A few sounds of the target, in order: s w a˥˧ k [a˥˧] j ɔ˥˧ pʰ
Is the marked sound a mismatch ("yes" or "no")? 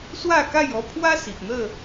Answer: no